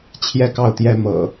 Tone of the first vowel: falling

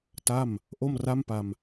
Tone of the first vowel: falling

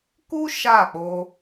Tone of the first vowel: high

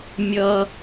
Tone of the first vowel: high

